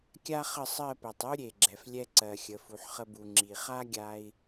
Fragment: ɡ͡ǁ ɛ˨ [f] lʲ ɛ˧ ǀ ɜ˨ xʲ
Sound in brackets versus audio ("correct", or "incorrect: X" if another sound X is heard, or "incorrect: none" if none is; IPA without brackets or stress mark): correct